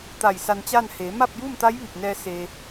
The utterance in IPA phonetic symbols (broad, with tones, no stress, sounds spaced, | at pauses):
t̪ a˧˩ j s a˧ n t͡ɕ a˥˨ n h eː˩˧ m a˥˨ p̚ j uː˥˨ m t̪ a˧˥ j ʋ i˧˩ p̚ n ɛː˧ s e˧